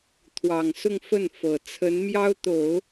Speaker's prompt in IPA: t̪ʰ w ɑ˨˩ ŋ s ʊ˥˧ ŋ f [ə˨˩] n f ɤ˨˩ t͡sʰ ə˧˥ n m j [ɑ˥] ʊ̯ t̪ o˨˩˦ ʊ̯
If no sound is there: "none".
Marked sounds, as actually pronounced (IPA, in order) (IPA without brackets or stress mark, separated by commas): ə˥˩, ɑ˥